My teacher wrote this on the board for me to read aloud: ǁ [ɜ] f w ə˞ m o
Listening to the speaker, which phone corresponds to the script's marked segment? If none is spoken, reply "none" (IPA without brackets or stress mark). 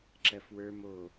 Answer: ɜ